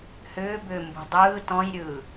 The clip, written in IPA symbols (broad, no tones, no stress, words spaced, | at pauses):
hʏːbʏː mbṳdˤɯːt ɔ̃jɾʲɯː